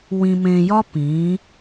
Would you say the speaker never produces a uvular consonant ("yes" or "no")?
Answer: yes